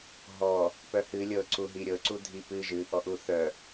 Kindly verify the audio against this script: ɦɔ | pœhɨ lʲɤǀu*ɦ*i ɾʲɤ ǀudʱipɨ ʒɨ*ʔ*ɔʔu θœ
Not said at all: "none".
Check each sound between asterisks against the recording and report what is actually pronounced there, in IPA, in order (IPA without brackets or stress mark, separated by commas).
ɦ, ʔ